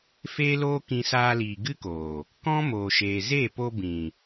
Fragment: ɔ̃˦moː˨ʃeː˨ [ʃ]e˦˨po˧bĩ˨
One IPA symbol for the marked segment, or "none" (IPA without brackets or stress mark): z